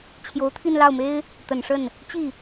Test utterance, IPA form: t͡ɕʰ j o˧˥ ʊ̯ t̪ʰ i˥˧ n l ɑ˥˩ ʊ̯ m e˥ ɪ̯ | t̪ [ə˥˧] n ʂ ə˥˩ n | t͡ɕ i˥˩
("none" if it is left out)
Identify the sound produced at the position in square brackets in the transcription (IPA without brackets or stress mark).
ə˨˩